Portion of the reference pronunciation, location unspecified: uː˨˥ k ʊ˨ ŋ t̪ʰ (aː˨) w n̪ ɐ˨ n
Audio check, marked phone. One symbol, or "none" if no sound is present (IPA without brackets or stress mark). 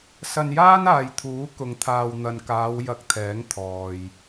aː˨